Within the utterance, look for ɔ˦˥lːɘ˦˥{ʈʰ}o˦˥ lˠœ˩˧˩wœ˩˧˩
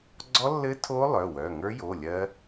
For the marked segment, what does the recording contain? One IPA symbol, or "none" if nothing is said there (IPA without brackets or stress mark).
tʰ